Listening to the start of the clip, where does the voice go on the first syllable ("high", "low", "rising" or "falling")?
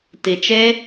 low